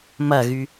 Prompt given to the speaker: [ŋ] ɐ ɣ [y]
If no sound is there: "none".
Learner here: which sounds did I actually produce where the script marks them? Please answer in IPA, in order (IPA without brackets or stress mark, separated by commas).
m, y